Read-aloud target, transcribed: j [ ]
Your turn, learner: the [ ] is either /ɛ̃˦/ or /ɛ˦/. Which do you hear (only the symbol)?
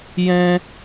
ɛ̃˦